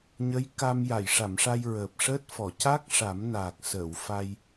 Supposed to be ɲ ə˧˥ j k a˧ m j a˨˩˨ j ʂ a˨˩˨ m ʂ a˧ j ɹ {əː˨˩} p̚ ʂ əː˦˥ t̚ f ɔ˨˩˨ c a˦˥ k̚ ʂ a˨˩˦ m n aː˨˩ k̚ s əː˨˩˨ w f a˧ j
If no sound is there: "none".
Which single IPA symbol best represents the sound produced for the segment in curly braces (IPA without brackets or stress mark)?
əː˨˩